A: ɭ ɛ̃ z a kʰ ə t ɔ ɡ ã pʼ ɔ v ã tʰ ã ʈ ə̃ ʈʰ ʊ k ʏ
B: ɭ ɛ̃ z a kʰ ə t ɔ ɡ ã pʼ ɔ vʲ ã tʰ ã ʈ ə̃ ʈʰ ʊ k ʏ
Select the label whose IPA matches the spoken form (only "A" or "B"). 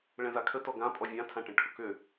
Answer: B